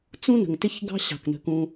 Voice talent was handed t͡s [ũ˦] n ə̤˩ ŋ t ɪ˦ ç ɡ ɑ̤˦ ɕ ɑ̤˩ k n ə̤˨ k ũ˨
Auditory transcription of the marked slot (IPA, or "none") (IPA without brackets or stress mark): ũ˦